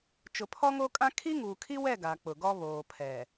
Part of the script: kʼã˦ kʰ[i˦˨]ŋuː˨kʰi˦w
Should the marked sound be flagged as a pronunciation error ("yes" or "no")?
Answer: yes